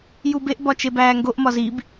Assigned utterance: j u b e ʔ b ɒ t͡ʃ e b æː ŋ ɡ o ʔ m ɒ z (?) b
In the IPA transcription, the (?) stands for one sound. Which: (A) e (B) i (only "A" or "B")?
B